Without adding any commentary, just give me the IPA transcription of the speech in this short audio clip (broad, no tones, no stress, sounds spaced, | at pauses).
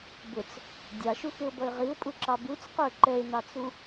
b ʊ t͡s | dʲ ɑ ʃ u x ɪ ʊ̯ b ʌ ɪ̯ ʁ i ʊ̯ pʼ u ǁ ɑ b u t͡s q ə˞ ǃ ɛ ɪ̯ n ɑ t͡s u